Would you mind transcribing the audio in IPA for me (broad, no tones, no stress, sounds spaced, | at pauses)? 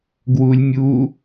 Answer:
ɡ w u lʲ mʲ u